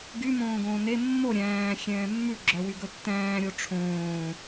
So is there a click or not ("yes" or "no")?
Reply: yes